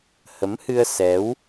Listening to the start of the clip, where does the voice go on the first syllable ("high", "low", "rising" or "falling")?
rising